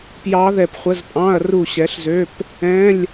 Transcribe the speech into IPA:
pjɑ˦˥ðɛ˦˨pχʷə˧˥˧z pʼɑ̃˧˥˧ɐ̯ru˦˨ɕɛ˨˥ɬzø˧˥˧p | ɛ̃˧˥˧lʲ

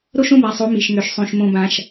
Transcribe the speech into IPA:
ɾo˦ʃõ˦ba˨sˤo˨˦ mi˨ʃŋø˨ʃ sˤõ˨ʃ mõ˨bã˨ʃ

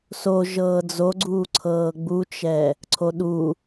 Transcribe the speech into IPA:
so ʒɤːd͡zoɡ͡ǀuː ǀʰɤːɡ͡but͡ʃɛ | ǀʰoɗu

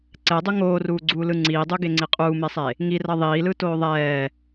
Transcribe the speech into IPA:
ǀɛdˤu ŋoːruːɡ͡ǀuːlɯ ŋ͡ǀiːdˤuɡeŋ͡ǀi qʼuːmesˤe | ŋirʌ ðˤiːlɯtoː ðˤɛː

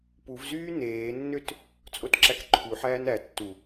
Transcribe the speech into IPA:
puvzyː neːnːøt | t͡sʼotǁækǃʰuħæːn æ tːu

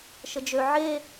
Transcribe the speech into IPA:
ʃəd͡ʒø ʕe

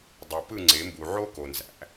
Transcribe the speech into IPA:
dˤu˩pɯ˥˩ŋ͡ǀe˩˥ mbu˩ʕo˥ko˩ nzæ̰˩˥

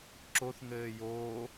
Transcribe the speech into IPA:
ǁoθŋɘː joː

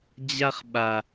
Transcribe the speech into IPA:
d͡ʑa˧χɓa˩

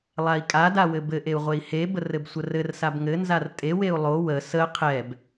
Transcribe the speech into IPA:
lˠai̯kʼada wɘbɘʔeu̯ ʁʷei̯hebər ɘbsʷərɘrsab ŋɘnzar tʼeweu̯ lˠo wə sə qʰɛb

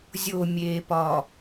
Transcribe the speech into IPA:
zʲomʲeːpɒ

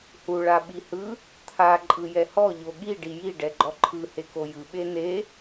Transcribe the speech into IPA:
hu ɭaɓihɯ | t̪ʰa ǃʼɯjɛhɔ ʎoɠi ɖiji ɖɛɡ͡ǃɔǃʰɯ hekojɯ ɓene

